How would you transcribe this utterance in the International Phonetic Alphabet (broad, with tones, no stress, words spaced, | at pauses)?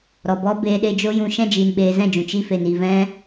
ɾɔ˨bɔ˦ beː˧ɗe˧d͡ʒo˦jũ˧ ʃɛ̃˧d͡ʒiː˨nɓeː˨ zɛ̃˦˨d͡ʒũ˨ t͡ʃi˦fe˧n i˨vɛ̃˦